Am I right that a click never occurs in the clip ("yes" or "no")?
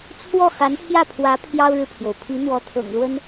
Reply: yes